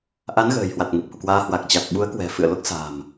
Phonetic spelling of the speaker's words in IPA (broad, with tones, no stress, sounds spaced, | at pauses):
ʔ a˨˦ n ɣ ə̤ː˨˩ j h w a˨˩ t̚ ŋ e˨˩ p̚ h ṵ˧˨ k w aː˧ h w a˨˩ k̚ t͡ɕ a˨˩ t̚ ɓ u˨˦ ə̯ k w ɛ̤˨˩ f ɨ̰˧˨ ə̯ l o˦˥ k̚ s a̤ː˨˩ m